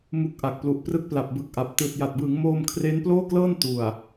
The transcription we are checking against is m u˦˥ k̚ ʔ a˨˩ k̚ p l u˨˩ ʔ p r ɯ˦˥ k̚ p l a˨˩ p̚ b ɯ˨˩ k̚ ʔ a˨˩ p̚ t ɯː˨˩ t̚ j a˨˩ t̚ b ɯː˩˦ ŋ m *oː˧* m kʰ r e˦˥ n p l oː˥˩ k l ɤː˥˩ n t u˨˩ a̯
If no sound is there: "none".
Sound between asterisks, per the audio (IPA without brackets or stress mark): oː˧